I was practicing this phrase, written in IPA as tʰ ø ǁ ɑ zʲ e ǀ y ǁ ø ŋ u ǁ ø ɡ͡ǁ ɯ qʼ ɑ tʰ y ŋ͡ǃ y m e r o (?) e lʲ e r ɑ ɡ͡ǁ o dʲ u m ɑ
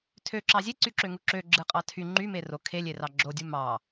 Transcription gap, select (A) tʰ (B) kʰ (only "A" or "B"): B